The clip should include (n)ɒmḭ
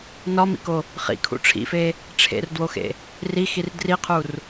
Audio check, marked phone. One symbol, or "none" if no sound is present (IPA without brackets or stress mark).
n